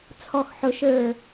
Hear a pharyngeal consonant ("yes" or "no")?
yes